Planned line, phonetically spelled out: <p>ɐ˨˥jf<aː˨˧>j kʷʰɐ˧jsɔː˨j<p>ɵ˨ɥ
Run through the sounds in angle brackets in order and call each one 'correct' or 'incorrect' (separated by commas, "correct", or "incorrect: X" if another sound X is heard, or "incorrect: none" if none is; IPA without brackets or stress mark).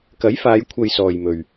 incorrect: k, correct, incorrect: m